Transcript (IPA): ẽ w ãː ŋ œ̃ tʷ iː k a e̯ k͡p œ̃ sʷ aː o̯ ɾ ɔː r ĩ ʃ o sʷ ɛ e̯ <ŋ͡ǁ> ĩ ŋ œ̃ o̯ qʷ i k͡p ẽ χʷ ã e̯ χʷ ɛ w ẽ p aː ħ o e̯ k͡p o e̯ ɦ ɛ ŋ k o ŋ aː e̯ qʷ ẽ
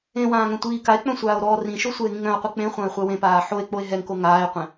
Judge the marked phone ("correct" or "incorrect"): incorrect